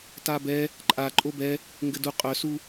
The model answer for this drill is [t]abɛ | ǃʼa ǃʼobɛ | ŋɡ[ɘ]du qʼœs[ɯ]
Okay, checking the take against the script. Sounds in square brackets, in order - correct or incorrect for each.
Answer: correct, correct, incorrect

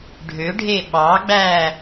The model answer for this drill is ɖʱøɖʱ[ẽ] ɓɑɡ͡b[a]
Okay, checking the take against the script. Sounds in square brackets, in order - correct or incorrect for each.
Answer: incorrect, incorrect

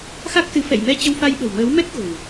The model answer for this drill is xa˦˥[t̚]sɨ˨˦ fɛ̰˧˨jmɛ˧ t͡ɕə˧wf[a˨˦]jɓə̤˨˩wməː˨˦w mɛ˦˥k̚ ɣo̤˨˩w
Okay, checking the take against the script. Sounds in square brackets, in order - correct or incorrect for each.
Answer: incorrect, incorrect

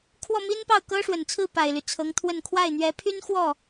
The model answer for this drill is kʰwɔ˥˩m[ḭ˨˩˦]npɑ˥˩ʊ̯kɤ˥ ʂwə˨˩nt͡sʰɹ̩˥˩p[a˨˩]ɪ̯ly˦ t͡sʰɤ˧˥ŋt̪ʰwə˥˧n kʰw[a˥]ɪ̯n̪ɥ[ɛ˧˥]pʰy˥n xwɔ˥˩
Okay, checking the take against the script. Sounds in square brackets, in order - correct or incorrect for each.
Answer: incorrect, correct, incorrect, correct

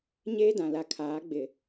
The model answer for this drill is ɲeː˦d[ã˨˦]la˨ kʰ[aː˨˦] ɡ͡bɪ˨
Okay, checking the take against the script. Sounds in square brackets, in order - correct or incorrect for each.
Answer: incorrect, correct

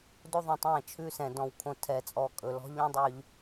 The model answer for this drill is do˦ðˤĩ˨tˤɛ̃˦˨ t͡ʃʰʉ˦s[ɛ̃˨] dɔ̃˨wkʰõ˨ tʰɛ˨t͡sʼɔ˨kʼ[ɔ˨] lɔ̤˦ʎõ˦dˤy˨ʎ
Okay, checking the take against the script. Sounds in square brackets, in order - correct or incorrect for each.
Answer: correct, incorrect

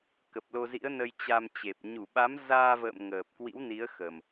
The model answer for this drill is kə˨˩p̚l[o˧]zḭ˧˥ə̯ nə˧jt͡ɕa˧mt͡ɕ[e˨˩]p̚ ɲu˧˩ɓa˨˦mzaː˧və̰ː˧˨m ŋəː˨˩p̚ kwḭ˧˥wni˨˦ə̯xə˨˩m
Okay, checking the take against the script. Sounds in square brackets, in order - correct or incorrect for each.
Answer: correct, correct

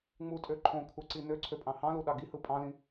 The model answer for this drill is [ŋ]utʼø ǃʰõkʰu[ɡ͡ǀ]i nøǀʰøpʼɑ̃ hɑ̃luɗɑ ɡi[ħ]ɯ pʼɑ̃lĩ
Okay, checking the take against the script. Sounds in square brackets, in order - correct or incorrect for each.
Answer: incorrect, incorrect, incorrect

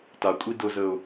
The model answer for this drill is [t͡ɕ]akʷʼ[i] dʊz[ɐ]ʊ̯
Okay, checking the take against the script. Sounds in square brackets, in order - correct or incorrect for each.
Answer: incorrect, correct, incorrect

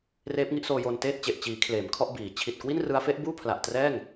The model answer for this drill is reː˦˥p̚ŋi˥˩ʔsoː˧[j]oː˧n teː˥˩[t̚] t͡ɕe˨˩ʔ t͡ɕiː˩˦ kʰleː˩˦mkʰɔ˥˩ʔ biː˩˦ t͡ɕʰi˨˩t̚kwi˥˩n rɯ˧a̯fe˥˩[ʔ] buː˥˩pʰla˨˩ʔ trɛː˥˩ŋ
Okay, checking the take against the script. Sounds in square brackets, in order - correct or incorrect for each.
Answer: correct, correct, correct

